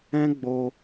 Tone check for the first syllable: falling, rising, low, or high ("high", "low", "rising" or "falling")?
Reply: high